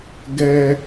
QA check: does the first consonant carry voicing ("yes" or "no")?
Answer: yes